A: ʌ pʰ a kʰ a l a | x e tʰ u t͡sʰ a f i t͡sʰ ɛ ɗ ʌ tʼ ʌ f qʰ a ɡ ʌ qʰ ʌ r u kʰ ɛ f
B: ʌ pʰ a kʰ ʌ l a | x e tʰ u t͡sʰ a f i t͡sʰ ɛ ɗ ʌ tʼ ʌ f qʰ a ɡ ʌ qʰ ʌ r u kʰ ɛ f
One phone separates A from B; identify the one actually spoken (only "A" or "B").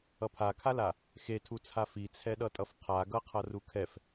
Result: A